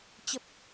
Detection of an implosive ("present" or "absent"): absent